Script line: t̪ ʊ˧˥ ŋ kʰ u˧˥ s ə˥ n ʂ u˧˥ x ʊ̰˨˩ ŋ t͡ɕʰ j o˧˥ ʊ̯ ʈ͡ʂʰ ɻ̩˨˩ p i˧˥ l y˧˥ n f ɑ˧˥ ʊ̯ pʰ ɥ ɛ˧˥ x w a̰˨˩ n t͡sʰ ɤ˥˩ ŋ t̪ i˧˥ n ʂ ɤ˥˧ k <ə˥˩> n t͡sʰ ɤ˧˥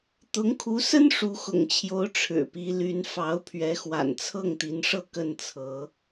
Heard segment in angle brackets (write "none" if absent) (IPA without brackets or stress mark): ə˥˩